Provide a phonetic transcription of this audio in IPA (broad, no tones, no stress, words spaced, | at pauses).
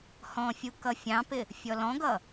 hɔ̃fʲu kʌfʲɑ̃pɪ | fʲɔlɔ̃ɡʌ